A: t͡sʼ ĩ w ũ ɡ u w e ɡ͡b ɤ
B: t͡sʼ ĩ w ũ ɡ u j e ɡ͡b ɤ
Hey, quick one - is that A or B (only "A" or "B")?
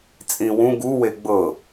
A